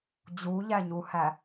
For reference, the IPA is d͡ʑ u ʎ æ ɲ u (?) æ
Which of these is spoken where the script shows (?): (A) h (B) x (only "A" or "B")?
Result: A